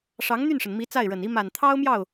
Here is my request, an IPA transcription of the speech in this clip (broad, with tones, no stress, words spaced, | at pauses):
ʂɑ˧˥ŋn̪y˥˩nʂə˩nmi˧˥ t͡sa˥˩ɪ̯ɻə˨˩ni˥ ma˨˩nt̪ʰɑ˥ʊ̯ mjɑ˥˩ʊ̯